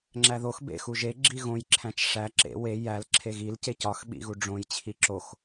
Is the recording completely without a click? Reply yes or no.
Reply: no